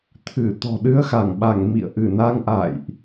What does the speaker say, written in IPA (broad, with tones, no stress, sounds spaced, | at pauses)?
t̪ʰ ɨ˧˩ t̪ ɔ̤˨˩ ɗ ɨ˧ ə̯ x a˧˩ ŋ ɓ a˧˩ ŋ m ḭ˧˨ ə̯ ʔ ɨ˧˩ n a˧ ŋ ʔ a̰˧˨ j ʔ